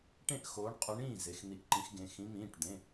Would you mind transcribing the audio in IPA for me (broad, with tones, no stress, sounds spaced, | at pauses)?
ʈ ẽ˥˩ ʔ x oː˨˦ ɳ qʼ u˨˦ ɳ ĩː˥˩ z e˩˧˩ x n̪ i˧˩ ʔ ǃ ĩ˨˦ x ɡ ẽ˩˧˩ x ĩ˨˦ m ĩː˩˧˩ ʈ d̪ ẽ˩˧˩